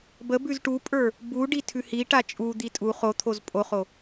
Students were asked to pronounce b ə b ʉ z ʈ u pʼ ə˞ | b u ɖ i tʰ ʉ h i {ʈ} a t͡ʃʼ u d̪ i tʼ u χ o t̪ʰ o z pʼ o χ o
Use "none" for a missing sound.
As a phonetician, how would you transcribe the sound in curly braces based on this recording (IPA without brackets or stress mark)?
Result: ʈ